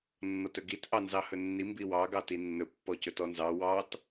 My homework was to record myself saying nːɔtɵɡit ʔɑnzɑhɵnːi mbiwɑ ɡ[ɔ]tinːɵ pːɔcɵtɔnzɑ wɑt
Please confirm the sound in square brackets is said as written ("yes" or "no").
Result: no